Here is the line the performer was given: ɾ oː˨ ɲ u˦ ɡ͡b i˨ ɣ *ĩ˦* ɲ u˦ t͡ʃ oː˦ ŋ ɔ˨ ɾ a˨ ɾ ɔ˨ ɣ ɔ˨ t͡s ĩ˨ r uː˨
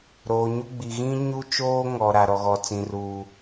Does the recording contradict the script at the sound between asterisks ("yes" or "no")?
no